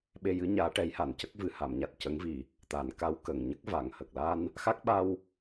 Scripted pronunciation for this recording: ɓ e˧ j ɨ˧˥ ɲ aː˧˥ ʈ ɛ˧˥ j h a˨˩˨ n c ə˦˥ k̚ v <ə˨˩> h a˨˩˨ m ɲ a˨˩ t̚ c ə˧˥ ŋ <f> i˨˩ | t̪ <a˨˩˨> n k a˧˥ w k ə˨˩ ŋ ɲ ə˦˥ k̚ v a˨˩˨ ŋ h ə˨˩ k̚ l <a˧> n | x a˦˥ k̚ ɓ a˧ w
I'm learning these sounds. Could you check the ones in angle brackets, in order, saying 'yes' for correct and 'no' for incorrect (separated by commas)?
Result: no, no, no, yes